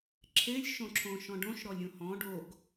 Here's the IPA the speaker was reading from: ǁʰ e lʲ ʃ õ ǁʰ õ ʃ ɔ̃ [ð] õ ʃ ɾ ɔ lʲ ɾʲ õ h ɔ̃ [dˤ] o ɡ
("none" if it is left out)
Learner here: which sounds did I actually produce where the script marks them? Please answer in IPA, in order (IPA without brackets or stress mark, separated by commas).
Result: ɖ, ɖ